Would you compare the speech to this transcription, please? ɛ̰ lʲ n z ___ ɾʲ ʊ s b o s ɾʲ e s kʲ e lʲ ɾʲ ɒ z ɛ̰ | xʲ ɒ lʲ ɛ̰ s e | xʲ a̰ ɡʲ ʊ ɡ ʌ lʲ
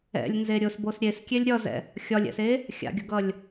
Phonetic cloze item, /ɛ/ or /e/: e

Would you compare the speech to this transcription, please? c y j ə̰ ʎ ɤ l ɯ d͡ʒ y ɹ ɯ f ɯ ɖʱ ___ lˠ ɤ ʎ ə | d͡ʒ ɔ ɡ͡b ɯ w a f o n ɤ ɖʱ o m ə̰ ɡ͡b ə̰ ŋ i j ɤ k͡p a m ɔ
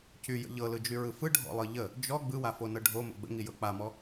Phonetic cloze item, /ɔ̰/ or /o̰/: ɔ̰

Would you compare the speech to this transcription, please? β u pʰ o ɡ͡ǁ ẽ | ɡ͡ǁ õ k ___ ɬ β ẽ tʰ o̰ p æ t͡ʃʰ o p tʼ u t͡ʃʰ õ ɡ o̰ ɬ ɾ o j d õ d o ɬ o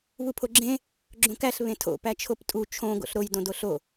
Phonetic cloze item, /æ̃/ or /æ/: æ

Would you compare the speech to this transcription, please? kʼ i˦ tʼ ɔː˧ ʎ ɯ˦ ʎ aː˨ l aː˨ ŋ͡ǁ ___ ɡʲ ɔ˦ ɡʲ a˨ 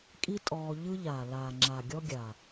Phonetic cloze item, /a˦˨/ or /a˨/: a˨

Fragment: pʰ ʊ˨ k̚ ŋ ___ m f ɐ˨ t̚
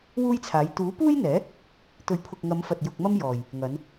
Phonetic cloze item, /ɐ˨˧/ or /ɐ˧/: ɐ˨˧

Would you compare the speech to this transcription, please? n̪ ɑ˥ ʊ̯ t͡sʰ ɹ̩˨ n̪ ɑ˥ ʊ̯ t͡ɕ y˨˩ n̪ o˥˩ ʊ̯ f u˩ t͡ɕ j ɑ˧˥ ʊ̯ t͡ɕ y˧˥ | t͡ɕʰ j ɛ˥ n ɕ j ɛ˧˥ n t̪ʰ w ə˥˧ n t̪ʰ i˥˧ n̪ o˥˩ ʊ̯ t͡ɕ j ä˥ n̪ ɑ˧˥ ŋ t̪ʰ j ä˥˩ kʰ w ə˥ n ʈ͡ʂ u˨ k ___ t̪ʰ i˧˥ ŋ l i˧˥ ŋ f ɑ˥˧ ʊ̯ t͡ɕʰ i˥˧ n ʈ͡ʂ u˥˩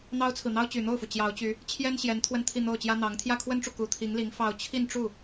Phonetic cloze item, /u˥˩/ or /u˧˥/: u˧˥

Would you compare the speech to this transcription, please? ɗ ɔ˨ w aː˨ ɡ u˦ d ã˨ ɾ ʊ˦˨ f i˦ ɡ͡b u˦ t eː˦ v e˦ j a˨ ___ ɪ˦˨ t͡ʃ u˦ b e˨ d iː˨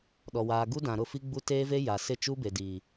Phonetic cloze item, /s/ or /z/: s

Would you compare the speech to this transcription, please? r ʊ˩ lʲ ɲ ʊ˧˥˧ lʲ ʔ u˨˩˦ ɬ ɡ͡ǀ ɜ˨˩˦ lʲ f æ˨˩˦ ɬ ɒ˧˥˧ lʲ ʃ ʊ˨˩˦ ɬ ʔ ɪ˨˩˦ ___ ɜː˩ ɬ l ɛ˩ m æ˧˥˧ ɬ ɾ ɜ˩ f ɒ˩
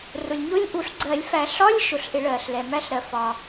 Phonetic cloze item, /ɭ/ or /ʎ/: ɭ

